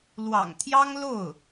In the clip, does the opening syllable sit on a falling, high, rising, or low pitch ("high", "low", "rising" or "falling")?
low